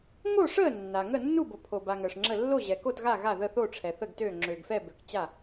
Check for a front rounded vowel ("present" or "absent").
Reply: present